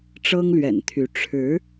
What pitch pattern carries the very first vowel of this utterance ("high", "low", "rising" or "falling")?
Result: high